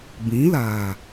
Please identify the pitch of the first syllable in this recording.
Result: rising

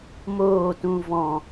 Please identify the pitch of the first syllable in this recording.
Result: falling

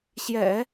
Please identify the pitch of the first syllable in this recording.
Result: low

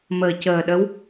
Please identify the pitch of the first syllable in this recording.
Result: low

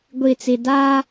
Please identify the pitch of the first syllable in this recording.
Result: low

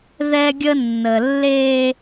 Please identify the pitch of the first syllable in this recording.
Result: high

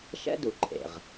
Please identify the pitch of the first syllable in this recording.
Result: high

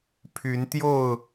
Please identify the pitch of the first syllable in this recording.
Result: rising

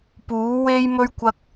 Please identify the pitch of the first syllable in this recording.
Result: rising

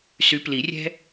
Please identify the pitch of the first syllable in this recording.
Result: rising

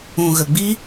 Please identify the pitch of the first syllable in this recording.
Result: low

